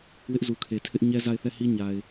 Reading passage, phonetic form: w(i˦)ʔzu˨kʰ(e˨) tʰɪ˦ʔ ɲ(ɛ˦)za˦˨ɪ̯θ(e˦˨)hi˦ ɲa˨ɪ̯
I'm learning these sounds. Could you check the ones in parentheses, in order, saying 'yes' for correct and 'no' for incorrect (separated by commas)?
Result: no, yes, yes, no